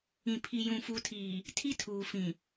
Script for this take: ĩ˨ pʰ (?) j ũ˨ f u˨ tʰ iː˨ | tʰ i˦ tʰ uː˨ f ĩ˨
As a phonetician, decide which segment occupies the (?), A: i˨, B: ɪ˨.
A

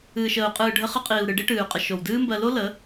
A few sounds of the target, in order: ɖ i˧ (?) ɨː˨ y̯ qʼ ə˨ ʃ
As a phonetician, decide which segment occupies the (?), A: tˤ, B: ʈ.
B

